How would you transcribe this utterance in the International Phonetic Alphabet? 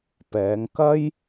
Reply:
p ɛː˨˧ ŋ k ɐ˥ j

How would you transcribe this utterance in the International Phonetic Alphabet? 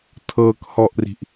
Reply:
tʰ ɤ k h ɔ ʔ r i̤ ʔ

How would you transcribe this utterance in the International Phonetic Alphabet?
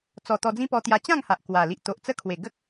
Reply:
t͡s ɔ˨˩ t̪ ɔ˧ d͡z ĩ˦ p ɔ˧ t̪ j a˧ t͡ɕ ã˥˧ ŋ h a˨ ʔ k w a˨˩ l i˨ ʔ t̪ o˨ ʔ t͡s ə˦ kʰ w e˨˩ ɡ ə˦ k̚

